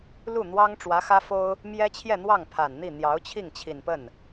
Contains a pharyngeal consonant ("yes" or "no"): no